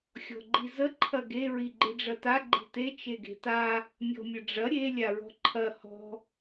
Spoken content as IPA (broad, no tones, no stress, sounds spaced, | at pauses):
xʲ ɔ̤ ɡ͡ǃ i z ə ǃʰ ɐ ɡ e ɹ i ɡ͡ǃ i ɖ͡ʐ ɐ t a ɡ͡ǃ i̤ t e t͡ʃ e ɡ e̤ t a | mʲ ɔ̤ mʲ ə ɖ͡ʐ ɐ ɾʲ e lʲ a ɹ ɔ̤ ǃʰ ɐ h ɔ̤